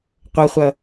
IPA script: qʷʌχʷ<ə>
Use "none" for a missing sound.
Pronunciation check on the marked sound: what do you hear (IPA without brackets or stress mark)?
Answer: ʌ